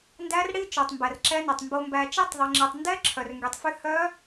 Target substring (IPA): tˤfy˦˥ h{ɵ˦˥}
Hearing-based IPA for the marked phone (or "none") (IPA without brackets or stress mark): œ˦˥